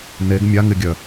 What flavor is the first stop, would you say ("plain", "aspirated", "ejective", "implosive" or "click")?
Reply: plain